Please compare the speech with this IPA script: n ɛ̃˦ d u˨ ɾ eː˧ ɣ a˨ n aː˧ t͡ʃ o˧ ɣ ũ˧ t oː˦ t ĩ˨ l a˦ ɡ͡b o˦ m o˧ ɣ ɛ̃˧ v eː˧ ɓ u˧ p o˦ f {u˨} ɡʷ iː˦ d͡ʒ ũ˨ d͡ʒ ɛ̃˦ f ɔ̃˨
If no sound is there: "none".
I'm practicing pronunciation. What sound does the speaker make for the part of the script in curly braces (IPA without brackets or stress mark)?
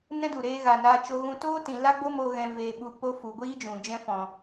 u˨